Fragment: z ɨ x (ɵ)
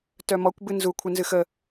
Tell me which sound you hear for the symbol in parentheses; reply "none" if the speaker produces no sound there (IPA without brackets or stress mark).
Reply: ə